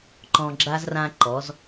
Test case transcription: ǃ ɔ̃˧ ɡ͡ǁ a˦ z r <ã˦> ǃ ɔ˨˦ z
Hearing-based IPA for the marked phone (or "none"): ã˦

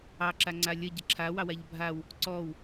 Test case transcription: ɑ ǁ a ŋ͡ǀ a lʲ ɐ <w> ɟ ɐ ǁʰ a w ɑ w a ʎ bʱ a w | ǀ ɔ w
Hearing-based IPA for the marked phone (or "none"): none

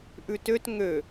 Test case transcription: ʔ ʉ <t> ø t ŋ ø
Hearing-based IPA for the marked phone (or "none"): t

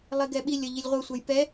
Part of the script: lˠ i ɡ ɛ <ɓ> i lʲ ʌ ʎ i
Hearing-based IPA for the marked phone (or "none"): ɓ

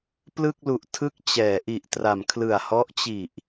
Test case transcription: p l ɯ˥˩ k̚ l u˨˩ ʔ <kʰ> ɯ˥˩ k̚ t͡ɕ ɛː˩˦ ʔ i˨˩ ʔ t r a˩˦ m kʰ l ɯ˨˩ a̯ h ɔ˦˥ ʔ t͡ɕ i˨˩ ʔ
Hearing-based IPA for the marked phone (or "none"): tʰ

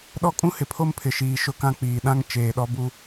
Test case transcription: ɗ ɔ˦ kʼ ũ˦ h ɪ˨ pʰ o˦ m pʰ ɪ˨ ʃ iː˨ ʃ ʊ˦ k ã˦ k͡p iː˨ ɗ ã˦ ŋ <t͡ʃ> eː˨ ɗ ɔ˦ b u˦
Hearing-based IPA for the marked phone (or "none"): t͡ʃ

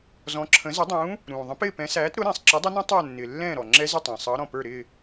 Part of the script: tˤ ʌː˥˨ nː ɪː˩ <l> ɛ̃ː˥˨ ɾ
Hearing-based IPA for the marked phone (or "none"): lː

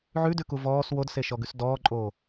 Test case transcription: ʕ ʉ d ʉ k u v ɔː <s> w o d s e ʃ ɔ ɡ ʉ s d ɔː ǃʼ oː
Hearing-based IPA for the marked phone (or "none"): s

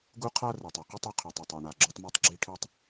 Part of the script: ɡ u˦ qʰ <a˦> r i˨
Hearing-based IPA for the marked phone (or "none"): a˦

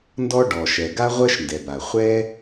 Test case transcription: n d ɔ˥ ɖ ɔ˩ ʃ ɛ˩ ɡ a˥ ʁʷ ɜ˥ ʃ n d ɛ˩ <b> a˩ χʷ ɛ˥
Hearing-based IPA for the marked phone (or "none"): b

